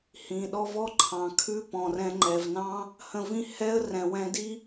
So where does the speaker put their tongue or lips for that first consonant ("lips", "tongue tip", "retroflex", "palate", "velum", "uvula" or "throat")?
throat